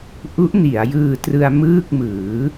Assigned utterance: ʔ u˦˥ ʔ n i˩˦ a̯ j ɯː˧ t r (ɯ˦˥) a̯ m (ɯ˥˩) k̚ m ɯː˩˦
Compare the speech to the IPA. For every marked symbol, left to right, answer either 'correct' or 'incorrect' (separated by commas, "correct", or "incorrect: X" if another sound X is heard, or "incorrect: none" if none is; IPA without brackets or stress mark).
incorrect: ɯ˧, incorrect: ɯː˥˩